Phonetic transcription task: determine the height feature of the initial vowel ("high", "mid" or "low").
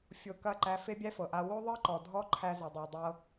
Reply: mid